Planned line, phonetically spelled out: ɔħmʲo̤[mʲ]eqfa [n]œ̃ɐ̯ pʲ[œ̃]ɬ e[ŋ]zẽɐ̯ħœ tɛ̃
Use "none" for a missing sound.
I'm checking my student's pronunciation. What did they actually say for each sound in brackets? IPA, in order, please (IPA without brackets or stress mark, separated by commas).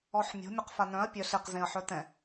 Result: mʲ, n, œ, q